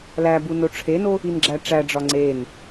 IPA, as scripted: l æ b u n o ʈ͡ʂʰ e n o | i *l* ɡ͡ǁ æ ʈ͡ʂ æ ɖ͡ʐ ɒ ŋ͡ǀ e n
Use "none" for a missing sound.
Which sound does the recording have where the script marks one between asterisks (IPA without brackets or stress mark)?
n